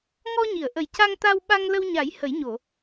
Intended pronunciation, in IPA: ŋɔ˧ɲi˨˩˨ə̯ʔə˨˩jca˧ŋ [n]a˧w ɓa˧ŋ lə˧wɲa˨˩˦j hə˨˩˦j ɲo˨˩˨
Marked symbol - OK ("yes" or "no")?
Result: no